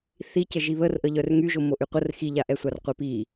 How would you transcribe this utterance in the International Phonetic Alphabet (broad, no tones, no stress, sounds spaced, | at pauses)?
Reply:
θ i c ə ʒ i β ə r ʔ ə ʎ œ r ŋ y ʒ o m o ʔ y qʷ ə r x i ʎ a ʔ ɛ sʷ a r qʷ e p i